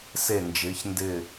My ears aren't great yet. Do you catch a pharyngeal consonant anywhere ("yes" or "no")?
no